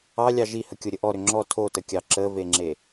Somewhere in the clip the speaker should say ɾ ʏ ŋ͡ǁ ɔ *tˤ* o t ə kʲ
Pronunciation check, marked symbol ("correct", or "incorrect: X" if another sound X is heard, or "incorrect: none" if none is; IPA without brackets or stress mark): incorrect: tʰ